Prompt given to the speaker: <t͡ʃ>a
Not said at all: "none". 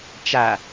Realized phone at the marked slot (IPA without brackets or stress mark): t͡ʃ